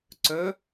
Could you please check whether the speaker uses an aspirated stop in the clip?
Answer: no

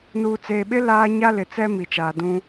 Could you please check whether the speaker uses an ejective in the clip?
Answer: no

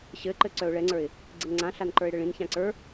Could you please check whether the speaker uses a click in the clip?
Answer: yes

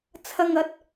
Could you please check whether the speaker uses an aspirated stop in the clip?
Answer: yes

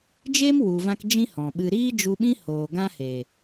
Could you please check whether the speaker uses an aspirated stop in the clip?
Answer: no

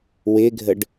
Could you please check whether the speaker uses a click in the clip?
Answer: no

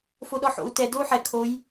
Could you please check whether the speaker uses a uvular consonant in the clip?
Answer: no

